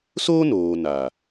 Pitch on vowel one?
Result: high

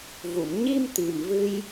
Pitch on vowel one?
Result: low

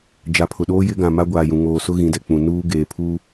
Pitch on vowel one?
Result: low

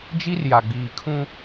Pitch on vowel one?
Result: high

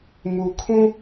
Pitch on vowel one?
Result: low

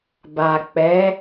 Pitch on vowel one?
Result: low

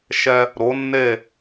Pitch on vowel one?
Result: high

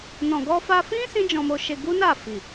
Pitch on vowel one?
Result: low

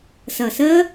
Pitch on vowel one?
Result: low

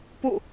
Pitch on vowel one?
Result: falling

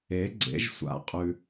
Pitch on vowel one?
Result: rising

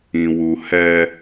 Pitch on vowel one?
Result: low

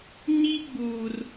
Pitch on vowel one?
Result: high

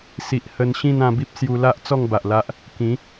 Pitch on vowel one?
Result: low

